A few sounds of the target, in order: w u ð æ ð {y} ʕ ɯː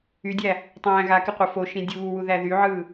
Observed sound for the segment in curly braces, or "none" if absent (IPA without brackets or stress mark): y